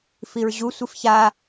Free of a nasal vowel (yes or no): yes